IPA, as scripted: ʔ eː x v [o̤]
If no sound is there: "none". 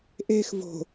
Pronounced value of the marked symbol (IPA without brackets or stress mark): o̤